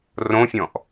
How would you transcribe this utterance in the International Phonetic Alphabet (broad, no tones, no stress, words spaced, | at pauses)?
rõfʲɔ̃ʔ